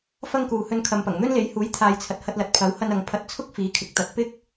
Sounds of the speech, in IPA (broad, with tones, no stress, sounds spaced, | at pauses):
f ɐ˥ ŋ k uː˨ h ɵ˧ n kʰ ɐ˨ m p ɐ˨˩ ŋ n̪ ɵ˥ n l e˨˥ j h uː˨˥ j t̪ʰ aː˨ j t͡sʰ ɐ˨ t̚ h ɐ˧ t̚ l ɐ˨ t̚ pʰ ɐ˨˥ w h ɐ˧ n ɐ˨ ŋ pʰ ɐ˧ t̚ t͡sʰ ʊ˥ k̚ f iː˨˥ kʰ ɪ˨˥ k̚ t̪ ɐ˨ t̚ p ɪ˥ k̚